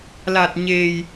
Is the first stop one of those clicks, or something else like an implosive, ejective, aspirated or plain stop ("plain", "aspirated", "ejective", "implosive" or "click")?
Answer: plain